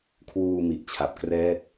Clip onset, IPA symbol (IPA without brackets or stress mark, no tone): kʰ